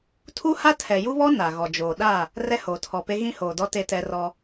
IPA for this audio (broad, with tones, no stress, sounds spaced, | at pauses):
tʰ u˦ h a˦ tʰ ɛ˨ j u˦ β ɔ˦ n a˨ ɣ ɔ˨ d͡ʒ oː˨ ɗ a˦˨ | r ɛ˦ h oː˨ tʰ ɔ˨ p e˦ ɣ ĩ˦ h oː˨ d ɔ˦ t e˦ t ɛ˦ r ɔ˦